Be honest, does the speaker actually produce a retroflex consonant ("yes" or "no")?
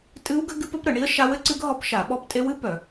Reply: yes